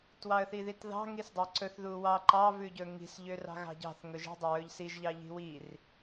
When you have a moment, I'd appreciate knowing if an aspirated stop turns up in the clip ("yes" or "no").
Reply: no